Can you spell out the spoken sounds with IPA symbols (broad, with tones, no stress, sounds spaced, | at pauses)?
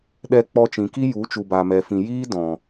ɗ ɛ˧ k͡p ɔ˧ t͡ʃ ĩ˨ k i˦ j u˨˦ t͡ʃ u˨ b aː˨ m ɛ˨ f ĩ˨ j iː˦ d ɔ̃˨